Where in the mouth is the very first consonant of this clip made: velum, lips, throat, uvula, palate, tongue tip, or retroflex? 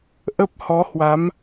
throat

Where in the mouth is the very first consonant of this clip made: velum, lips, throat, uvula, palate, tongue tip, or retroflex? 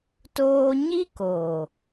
tongue tip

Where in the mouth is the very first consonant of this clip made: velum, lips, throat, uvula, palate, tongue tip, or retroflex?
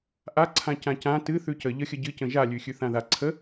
throat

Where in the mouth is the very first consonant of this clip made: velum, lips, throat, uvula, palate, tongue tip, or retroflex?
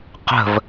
uvula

